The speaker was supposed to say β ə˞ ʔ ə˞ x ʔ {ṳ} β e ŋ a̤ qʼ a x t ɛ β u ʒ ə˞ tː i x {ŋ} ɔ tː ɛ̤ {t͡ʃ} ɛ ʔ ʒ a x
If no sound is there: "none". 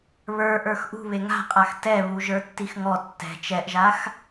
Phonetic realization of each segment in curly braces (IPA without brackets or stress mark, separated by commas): ṳ, ŋ, t͡ʃ